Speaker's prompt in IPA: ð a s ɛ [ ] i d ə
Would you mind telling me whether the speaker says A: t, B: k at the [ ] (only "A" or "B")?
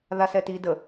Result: A